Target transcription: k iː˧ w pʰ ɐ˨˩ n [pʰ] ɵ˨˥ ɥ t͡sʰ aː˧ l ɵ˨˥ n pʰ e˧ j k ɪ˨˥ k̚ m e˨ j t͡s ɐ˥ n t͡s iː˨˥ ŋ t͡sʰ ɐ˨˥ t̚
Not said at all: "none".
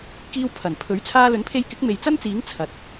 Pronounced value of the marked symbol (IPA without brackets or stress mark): pʰ